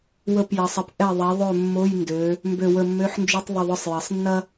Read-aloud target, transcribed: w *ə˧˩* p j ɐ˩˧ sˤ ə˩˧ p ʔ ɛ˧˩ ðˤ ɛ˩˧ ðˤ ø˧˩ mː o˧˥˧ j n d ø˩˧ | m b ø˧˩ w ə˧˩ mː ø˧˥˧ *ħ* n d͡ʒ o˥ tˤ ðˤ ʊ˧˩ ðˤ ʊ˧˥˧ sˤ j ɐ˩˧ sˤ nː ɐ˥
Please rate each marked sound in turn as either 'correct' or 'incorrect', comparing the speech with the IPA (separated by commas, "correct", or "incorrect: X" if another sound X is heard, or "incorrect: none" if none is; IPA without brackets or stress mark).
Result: correct, correct